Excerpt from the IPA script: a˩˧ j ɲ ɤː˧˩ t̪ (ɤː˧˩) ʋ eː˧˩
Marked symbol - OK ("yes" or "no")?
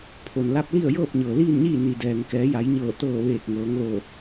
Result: yes